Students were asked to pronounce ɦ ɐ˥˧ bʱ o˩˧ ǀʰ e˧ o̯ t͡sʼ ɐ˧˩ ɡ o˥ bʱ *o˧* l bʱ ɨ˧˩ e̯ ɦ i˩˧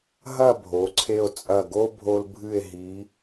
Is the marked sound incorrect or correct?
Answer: correct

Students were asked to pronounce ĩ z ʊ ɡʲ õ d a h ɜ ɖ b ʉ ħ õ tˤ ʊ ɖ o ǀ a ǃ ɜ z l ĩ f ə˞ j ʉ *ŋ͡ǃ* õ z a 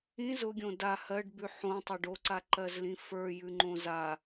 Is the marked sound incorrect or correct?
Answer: correct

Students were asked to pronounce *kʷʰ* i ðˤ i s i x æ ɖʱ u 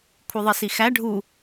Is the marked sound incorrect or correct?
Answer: correct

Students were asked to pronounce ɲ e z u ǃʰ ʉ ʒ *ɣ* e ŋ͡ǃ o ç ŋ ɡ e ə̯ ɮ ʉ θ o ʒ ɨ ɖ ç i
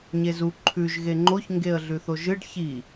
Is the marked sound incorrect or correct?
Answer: correct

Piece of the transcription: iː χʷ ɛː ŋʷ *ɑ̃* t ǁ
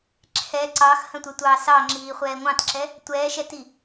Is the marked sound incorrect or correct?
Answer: correct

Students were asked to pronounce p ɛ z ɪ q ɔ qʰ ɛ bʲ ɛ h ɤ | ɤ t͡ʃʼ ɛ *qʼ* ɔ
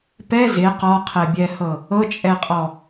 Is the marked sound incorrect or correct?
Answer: correct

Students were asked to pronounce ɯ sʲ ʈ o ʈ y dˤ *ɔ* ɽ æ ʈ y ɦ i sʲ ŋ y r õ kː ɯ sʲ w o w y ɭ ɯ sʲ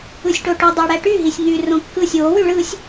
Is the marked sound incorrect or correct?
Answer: incorrect: ɑ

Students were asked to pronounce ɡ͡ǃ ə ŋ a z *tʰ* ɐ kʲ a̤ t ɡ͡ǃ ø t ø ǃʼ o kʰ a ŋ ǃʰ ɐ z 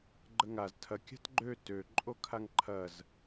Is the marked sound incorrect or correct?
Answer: correct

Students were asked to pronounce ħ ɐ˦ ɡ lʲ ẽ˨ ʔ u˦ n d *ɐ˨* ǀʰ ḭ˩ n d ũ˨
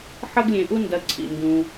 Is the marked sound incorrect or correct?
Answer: correct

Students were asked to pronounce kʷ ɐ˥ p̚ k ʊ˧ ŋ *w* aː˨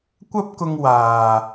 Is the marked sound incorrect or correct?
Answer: correct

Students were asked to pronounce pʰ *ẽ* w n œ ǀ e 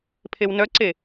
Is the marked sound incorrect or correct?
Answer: incorrect: e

